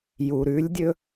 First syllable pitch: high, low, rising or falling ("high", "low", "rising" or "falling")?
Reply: low